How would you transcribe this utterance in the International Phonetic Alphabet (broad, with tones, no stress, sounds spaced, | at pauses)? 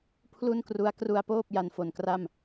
pʰ l u˥˩ n k r u˦˥ a̯ k r u˧ a̯ p oː˥˩ p̚ j a˧ n f o˨˩ n k r a˥˩ m